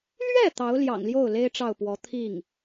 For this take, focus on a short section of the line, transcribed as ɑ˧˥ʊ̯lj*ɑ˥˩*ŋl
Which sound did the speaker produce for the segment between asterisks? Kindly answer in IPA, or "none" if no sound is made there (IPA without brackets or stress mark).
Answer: ɑ̰˨˩